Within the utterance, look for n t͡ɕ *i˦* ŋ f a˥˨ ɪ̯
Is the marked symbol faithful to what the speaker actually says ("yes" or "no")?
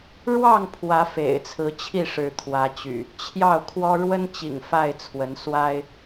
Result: no